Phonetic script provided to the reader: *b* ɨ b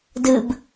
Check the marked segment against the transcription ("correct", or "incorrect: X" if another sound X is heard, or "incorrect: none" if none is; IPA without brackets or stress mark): incorrect: d